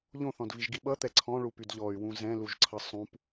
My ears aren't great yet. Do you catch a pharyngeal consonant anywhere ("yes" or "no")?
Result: no